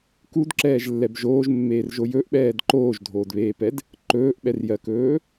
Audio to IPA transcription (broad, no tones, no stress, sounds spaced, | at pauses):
k u d ǁ ɛː ʒ lː ɛ b ʒ oː ʒ mː eː r ʒ o j ɵ ʔ ɓ ɛː d ǃ oː ʒ dʱ oː d β eː p ɛ d | ǃ ɵː ʔ ɓ ɛ r j ɜ k ɵː